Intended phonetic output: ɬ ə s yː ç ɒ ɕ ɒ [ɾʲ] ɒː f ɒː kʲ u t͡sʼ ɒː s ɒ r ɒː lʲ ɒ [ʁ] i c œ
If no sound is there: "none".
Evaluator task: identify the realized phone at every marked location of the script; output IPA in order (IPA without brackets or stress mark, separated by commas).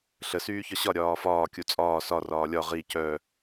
ɾʲ, ʁ